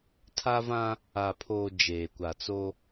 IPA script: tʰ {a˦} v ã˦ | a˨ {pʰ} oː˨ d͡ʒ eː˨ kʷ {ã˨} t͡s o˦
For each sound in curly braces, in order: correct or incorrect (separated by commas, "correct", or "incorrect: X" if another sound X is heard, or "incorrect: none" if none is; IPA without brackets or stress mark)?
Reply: correct, correct, incorrect: a˨